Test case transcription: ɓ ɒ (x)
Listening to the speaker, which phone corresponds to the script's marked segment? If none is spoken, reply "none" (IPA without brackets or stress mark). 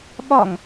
ŋ